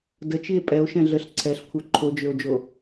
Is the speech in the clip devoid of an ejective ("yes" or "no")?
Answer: no